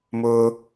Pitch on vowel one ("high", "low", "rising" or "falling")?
high